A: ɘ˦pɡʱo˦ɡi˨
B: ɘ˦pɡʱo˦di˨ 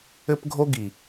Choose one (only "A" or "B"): A